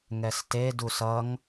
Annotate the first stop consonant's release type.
plain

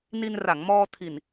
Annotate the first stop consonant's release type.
aspirated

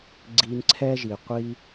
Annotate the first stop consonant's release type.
click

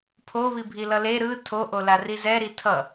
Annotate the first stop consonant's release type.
aspirated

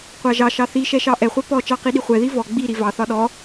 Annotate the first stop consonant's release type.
plain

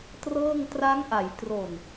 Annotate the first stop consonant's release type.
plain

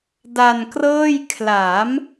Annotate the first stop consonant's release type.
plain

